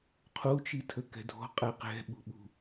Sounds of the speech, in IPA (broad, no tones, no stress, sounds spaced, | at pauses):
qʰ u t͡ʃ i tʰ ə k ɛ̤ dʱ ɔ̤ qʼ ɛ q ɛ̤ ɓ ṳ ɓ ṳ